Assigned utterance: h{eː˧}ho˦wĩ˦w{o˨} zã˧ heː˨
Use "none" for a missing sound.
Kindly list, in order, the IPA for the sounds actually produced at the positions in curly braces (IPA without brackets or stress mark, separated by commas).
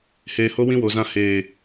eː˧, o˨